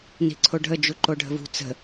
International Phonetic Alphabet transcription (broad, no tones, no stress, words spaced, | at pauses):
ni̤ǀʰoɖʱə d͡ʒuǃoɖʱə̤vṳ t͡sə̤